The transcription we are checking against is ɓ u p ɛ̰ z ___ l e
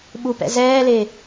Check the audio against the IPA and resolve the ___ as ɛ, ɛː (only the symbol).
ɛː